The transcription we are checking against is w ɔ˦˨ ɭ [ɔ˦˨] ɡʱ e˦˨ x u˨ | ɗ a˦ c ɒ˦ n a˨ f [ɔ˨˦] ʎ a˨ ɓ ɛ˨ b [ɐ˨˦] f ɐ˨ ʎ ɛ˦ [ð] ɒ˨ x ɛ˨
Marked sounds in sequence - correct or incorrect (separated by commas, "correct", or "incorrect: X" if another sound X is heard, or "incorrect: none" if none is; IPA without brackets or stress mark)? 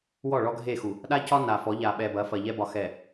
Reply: incorrect: ɔ˦, correct, correct, incorrect: b